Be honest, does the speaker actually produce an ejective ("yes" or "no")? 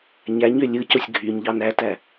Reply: no